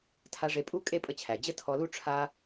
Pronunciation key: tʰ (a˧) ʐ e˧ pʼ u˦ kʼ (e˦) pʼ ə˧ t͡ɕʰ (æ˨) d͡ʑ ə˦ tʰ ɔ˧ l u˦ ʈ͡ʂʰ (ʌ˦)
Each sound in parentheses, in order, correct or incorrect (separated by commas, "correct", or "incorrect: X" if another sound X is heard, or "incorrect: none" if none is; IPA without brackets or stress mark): correct, correct, correct, incorrect: a˦